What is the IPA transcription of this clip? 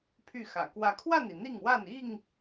pʰ y˥˨ x ä̰˨˩ k w ä˨˦ kʰ w a˥˨ n i˩ n̪ i˥˨ ŋ w a˥˨ n i˥˨ ŋ

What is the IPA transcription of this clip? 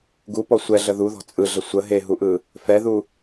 ɡ u p ɔ sʷ ɛ ɮ ə ð u ð ɔ̤ t͡sʼ ɯ ɮ ə sʷ ə ɦ e ɦ u ʔ ɯ | f ɛ ð u

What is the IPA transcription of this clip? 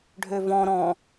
ɖʱ ø v ɔ̃ ɾ ɔ̃

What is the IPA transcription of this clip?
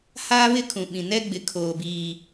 h aː˦ β ɪ˦ kʰ ũ˨ ɓ ĩ˨ n ɛ˦ ɡ͡b ɪ˨ kʰ oː˨ b iː˨

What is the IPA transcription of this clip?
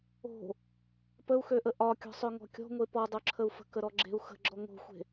o̤ | p ə u̯ x ø ʔ ə ʔ ɒ kʲ ɔ̤ sˤ ø ŋ ɔ̤ kʲ ɔ̤ ŋʷ e p ɔ dˤ o ǁʰ ə u̯ f ə̤ k ə ɾ ɔ ɡ͡ǁ e̤ u̯ x ə̤ ɡ͡ǁ ɔ ŋ o̤ xʷ e̤

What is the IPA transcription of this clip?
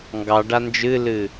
ŋ ɡ ɑ ɖ a n d͡ʒ ɨ l ɨ

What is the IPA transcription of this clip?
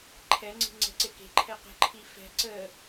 ǃʰ ɛ ŋ͡ǀ i̤ ŋ͡ǀ ɛ̤ ǀ e k e̤ ǃʰ ɛ q ə̤ ǃʰ i f ɛ̤ ǀ ə

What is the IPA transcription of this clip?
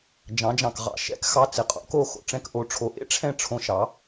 d͡ʒ ɑ̃˩˥ d͡ʒ ɑ̃˩ k ʁ ɑ̰˥˩ ʃ ɛ̰˥˩ k x ɑ˧ t͡s ɪ˩ qʼ o̰˩˥ k o˥˩ x o̰˩ ʈ͡ʂ ɛ̃˥˩ k ʔ o˩˥ ʈ͡ʂʰ o˩˥ ʔ ḛ˥ ʈ͡ʂʰ ɛ̃˥˩ ʈ͡ʂʰ õ˧ ʃ ɑ˩˥

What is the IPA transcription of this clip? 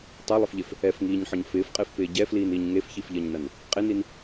tˤ a lˠ ɪ f ʎ e f | ɛ f ŋ iː ɲ ħ ɔ ɲ f ɪː f qʼ ɪː f p ɪː ɟ ɛ f l iː n iː ɲ ŋ e f ç i f ʎ ɜ ɲ n ɐ n | qʼ ɪ n i n

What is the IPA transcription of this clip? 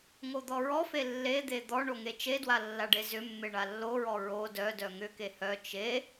ŋ o d̪ ɔ ɹ ɔ f e lː e d̪ e d̪ ɔ ɳ o ŋ e t͡ʃ e d w a lː a ɖ e z ʏ mː e ɳ a lː o ɹ ɔ ɹ o d œ d œ ŋ ʏ k e h œ t͡ʃ e

